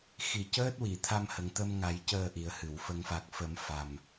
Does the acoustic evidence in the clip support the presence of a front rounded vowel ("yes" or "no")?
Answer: no